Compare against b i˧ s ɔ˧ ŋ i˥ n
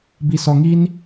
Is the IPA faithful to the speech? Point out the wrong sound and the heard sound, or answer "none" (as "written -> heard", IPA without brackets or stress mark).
none